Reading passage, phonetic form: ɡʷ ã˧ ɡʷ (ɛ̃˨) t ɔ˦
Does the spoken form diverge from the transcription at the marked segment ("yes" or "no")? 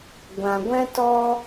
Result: yes